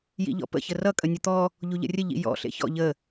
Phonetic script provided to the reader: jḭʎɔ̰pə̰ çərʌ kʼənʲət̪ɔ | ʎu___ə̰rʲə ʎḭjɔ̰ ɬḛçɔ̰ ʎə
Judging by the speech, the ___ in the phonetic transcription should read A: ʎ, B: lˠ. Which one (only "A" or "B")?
A